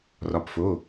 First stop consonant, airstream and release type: plain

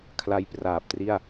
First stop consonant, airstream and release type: aspirated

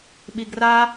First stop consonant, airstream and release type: implosive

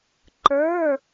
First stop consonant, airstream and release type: click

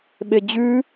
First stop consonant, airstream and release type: implosive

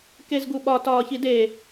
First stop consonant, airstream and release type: plain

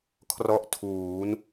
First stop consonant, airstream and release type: aspirated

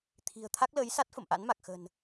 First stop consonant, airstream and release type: aspirated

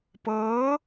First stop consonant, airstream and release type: plain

